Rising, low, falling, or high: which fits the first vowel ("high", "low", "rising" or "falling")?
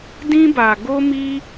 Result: high